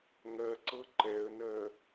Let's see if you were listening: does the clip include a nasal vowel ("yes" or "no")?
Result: no